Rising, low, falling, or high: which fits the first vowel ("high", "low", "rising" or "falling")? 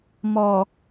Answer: low